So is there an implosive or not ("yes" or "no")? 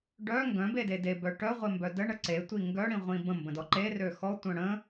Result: no